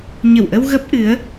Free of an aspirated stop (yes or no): yes